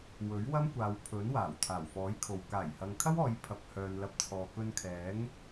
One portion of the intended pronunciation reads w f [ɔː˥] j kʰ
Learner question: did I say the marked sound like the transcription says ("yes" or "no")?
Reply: no